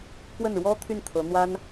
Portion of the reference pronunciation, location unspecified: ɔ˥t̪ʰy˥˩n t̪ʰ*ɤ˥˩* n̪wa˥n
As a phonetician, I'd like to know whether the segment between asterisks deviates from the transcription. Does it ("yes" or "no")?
yes